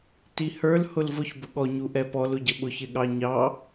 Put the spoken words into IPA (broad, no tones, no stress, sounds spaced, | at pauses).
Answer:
t i h ə˞ l h ʊ l v ʊ ç b ʊ ɠ ɔ ɲ u ʔ ɛ p ɔ l ʊ ɟ ə ɓ ʊ ç ɪ ɠ ɑ ɲ ɑ